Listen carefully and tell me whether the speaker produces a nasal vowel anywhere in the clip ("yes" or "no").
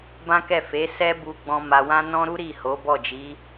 yes